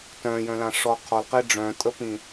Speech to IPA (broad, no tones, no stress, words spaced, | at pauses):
tœ̃jœ̃lã ʂɔ qʰɔlqi ɖ͡ʐœ̃tʼəpĩ